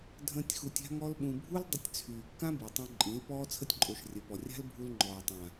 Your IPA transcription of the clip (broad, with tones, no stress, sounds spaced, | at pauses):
dʱ ə̃ː˦ tʲ x u˧ tʲ a̤˦ ŋ ɔ˦ l ɓ ũ˧ bʱ u˦ l dˤ ə˧ tʲ t͡sʰ yː˨ kː ã˦ b i˨ tˤ õ˧ ǃʼ ĩ˨˦ l p ɔː˦ t͡sʰ ə˦ tʲ ǃʼ o˨˦ ʃ rʲ ə˨ p ɔ˨ rʲ a̤˦ l bʱ u˧ l ŋ͡ǃ ɔː˨ tˤ ã˨